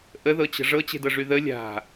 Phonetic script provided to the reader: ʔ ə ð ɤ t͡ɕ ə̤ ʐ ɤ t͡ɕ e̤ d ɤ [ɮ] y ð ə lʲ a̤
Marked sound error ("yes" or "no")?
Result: yes